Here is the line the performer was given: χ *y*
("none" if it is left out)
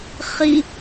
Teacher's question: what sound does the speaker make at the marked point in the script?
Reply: i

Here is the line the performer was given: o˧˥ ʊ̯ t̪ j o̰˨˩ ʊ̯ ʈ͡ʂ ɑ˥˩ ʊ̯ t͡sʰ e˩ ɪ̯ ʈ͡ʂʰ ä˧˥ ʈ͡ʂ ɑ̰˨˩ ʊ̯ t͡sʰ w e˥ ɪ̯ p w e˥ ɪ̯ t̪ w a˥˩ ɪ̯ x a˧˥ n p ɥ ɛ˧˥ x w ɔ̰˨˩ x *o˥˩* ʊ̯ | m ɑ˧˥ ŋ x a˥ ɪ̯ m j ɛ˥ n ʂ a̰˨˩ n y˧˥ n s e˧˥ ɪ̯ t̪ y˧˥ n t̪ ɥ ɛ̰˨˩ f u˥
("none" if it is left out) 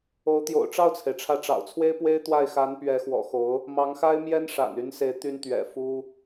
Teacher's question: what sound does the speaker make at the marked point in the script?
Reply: o˧˥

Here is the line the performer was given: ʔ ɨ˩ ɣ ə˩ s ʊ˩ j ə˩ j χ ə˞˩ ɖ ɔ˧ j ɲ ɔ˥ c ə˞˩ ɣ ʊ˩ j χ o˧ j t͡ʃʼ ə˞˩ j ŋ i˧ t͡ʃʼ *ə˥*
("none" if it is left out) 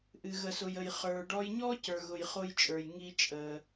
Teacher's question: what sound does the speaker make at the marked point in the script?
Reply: ə˩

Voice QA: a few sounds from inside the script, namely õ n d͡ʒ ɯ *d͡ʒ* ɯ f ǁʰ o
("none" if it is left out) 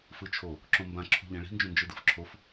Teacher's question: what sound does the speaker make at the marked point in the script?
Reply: d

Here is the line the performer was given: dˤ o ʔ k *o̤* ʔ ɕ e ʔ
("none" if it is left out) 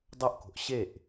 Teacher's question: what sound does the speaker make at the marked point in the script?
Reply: o̤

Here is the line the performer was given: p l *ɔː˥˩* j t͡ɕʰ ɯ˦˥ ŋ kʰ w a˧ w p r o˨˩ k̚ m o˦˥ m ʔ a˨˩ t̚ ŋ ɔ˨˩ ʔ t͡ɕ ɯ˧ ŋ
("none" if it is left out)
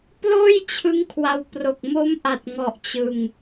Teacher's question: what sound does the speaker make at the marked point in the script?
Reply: oː˥˩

